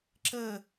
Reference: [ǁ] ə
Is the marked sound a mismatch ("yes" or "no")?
no